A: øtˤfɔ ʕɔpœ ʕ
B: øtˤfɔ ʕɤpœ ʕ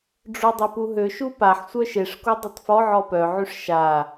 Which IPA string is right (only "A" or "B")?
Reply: A